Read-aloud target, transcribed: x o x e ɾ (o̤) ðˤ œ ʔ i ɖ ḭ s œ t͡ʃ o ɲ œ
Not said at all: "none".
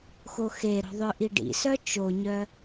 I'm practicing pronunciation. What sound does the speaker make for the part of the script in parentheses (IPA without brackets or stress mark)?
o̤